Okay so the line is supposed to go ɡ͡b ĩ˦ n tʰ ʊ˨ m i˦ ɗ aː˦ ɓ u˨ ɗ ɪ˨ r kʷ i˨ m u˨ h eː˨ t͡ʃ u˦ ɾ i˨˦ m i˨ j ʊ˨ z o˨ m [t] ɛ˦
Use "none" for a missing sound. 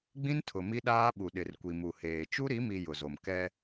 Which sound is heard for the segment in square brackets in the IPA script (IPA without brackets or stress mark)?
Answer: k